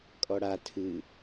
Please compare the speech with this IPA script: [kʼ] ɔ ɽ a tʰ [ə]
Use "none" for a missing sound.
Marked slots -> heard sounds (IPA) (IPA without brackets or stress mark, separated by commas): kʼ, ɨ